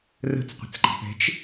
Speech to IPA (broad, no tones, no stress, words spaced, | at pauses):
rə̤t͡sqʷə̤t͡sɡ͡ǃɑ̤p ɛ̤t͡ʃ